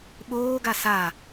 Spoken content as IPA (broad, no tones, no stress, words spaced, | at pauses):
ɓoːɡa sa